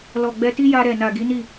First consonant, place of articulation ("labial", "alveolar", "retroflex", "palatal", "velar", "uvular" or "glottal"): alveolar